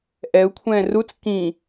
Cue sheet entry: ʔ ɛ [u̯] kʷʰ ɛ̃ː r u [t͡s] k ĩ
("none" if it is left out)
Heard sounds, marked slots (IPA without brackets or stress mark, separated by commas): u̯, t͡s